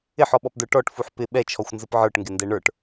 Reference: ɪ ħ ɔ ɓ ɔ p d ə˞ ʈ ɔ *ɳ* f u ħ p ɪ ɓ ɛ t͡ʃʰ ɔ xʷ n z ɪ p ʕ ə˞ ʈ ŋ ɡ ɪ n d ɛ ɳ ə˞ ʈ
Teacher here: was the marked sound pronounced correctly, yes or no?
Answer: no